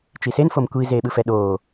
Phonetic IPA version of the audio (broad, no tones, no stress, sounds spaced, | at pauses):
t͡ʃ i s e n f o m kʷ i z eː ɓ ɯ f ɛ ɗ oː